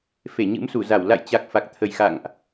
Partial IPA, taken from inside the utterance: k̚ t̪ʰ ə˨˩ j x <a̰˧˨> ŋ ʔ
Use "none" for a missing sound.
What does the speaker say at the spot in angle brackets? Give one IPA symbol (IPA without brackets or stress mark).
a̰˧˨